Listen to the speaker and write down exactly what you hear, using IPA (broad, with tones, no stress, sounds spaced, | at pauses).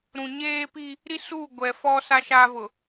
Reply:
ɾ ũ˨ ɲ eː˦ p i˦ | ɾ i˦ s uː˦˨ ɡʷ ɛ˨ f ɔ˦ s a˦ ʃ aː˦ v ʊ˨